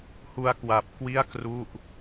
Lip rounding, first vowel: rounded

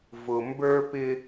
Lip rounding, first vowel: rounded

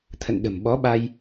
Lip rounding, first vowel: unrounded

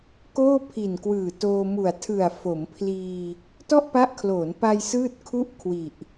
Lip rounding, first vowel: rounded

